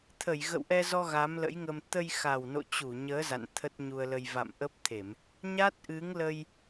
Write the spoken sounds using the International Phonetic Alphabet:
t̪ʰ ə˧˩ j ɣ ə̰˧˨ w ʔ ɛ˧ z ɔ˧ ɣ a˨˦ m l ə̰˧˥ j ŋ ə˧ m t̪ ə˧ j x a˨˩ w n o̰˧˨ t͡ɕ u˧˩ ɲ əː˨˦ z a̰˧˨ n t̪ʰ ə˦˥ t̚ ɲ u˧ ə̯ l ə˧ j v a̰˧˨ m ʔ ə˦˥ p̚ t̪ʰ e˧˩˨ m | ɲ a˦˥ t̚ ʔ ɨ˨˦ ŋ l ə˧ j

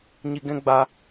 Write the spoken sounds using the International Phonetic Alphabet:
ɲ i˧ ɡ ɛ̃˦ ɡ͡b a˧

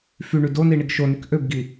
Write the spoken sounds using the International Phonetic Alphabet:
f y ɳ y d o n i ɳ i ɡ ʃ o n y k ʔ ø b ɡ i

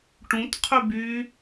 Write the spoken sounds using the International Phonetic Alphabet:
ʈ ũ t qʰ y b y

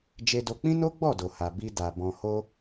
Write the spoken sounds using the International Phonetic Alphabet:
d͡ʒ e˧ d o˧ k͡p ĩ˦ n o˦ ɡ͡b ɔ˦˨ d o˨ h a˨ b i˧ d a˨ b ɔ̃˨ h o˧

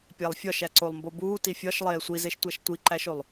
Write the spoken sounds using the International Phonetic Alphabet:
pʲ æ lˠ fʲ ɒ ʃ æ ǀ o lˠ m b o b uː t i fʲ ɒ ʃ lˠ eː sʷ i z e ʃ tʷ æ ʃ tʷ i ǃ æ ʃ o lˠ

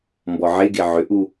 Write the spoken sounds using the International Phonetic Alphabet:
m b ɔ ʕ e ɡ e ʕ ʏ ʔ u

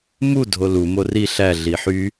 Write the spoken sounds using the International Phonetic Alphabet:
m u dʱ o l u m o r i ɬ æ ɮ i ħ y

